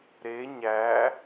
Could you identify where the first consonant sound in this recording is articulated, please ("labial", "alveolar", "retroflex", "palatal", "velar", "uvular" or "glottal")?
alveolar